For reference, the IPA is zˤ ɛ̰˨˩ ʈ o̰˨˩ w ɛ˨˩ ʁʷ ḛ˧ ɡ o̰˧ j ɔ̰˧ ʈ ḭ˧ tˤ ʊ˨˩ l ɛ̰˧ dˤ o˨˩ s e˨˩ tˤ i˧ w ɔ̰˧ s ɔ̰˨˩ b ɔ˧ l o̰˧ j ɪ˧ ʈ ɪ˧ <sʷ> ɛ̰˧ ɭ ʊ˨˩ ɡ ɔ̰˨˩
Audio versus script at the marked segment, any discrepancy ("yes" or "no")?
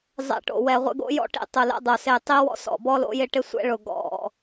no